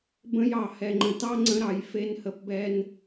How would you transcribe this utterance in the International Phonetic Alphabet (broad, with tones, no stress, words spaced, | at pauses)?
bə̃˧jɑ˨hɛ˨ŋ͡ǃə̃˨ tɑ˦ŋ͡ǀə̃˧ ɾɑ˨j fe˦nhə˦pbɛ˦n